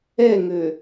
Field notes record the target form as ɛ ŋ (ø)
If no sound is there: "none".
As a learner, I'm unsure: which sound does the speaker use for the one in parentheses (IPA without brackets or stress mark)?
ø